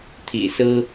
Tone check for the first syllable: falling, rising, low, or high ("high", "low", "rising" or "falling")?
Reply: low